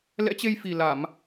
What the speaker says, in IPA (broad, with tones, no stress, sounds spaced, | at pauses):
l ɛ̰˧˥ t͡ɕ e˧ j f i˨˩ l a˧˩˨ m